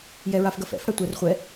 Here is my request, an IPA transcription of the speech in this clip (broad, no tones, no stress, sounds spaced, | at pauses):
j ɛ ɹ a f ɡ ɐ f ɛ̰ f ɽ ɐ tʷ ɛ r χʷ ɛ